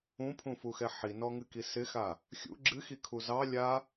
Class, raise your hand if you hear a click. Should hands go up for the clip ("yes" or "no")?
yes